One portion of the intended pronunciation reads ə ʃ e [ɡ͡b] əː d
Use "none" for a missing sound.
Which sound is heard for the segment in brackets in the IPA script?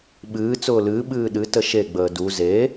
ɡ͡b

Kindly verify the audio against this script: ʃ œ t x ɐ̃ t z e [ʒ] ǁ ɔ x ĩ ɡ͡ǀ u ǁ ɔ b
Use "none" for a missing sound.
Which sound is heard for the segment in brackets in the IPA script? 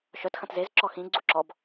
z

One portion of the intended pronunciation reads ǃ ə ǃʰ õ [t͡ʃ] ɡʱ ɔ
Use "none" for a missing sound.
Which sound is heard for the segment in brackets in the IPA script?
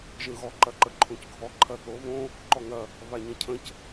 c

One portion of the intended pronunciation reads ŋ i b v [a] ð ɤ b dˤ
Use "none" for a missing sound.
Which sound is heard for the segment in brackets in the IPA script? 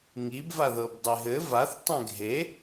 a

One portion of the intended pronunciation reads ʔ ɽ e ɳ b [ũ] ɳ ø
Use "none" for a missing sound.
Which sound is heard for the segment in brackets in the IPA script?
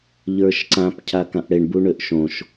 u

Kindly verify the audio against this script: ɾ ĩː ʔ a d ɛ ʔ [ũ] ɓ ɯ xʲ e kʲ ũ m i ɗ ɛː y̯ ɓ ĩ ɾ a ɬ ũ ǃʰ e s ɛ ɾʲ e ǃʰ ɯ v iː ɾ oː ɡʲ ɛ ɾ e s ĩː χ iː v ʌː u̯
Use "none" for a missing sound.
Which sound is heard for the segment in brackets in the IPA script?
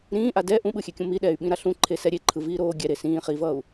ũ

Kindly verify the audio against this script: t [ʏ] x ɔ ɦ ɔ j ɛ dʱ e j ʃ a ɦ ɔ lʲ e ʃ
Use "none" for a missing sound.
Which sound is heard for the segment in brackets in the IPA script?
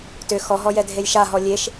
ʏ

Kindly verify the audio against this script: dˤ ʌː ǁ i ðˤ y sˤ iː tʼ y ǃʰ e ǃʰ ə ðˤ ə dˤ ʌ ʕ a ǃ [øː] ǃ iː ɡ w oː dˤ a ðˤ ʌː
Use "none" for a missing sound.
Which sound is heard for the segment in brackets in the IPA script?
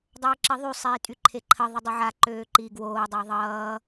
øː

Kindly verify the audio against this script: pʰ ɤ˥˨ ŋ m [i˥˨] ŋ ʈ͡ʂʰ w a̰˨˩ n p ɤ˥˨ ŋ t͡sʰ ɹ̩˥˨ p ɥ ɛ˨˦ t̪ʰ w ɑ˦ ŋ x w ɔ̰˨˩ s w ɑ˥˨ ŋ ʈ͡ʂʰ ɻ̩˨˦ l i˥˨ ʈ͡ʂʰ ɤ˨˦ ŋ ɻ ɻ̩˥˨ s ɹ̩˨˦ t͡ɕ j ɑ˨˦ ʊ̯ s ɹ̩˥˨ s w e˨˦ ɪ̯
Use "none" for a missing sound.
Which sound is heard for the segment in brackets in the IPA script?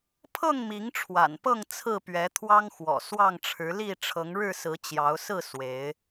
i˨˦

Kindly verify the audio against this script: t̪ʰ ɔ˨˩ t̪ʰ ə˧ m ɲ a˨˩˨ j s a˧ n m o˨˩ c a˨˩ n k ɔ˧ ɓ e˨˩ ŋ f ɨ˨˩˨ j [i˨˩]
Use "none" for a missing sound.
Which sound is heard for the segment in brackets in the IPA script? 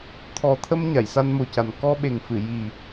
i˨˩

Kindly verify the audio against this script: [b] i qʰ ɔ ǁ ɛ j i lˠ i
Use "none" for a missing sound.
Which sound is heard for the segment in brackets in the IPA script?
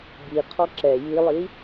b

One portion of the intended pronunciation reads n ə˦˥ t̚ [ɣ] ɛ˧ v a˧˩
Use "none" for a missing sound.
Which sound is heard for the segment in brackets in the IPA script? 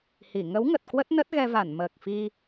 ɣ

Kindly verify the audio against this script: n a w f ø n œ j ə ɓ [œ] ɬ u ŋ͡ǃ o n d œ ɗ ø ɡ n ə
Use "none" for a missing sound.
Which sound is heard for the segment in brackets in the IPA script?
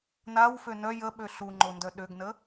ø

